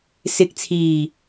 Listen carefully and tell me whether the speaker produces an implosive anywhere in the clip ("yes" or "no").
no